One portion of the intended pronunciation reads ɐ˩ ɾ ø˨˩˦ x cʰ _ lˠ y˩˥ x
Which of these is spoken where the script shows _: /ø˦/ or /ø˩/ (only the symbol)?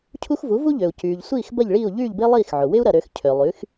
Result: ø˩